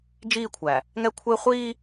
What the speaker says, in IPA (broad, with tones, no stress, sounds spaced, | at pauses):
d͡ʒ iː˦˨ kʷʰ æ˨ | ŋ ɛ˦ kʷʰ ɪː˦ χʷ iː˦